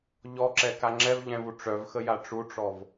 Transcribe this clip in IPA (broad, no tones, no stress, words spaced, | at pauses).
ʎɔǁɛka ŋ͡ǁɛvʎɛ̃vu ʈ͡ʂœvxəja ʈ͡ʂuʈ͡ʂɔv